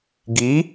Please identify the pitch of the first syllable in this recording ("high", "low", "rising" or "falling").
rising